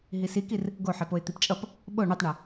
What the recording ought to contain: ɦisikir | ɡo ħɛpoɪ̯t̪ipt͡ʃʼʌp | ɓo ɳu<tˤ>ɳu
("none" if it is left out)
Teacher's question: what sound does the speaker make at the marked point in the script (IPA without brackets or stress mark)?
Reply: tˤ